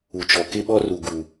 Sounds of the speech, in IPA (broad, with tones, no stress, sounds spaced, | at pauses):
u˨ t͡ʃ ɔ˨ k ɪ˦ ɓ ɔ˦ r u˨ ɡ u˨